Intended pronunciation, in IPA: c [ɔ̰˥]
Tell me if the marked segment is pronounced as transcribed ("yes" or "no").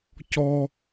no